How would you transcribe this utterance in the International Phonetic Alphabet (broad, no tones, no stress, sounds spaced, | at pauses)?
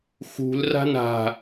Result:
x ṳ l r a̤ n a̤